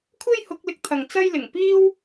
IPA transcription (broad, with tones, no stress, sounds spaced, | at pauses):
kʷʰ e˥ j h ʊ˨˥ k̚ l ɪ˧ k̚ t̪ʰ ɐ˨ ŋ t͡s ɐ˥ j l ɪ˨˩ ŋ p iː˥ w